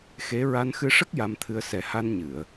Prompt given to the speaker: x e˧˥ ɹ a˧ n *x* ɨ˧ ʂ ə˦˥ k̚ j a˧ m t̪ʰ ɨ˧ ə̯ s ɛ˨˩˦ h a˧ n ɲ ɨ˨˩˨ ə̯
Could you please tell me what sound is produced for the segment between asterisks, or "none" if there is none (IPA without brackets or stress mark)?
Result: x